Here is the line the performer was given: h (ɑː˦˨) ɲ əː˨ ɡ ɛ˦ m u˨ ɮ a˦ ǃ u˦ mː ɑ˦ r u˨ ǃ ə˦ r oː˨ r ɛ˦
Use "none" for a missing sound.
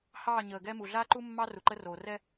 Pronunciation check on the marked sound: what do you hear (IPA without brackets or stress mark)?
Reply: ɑː˦˨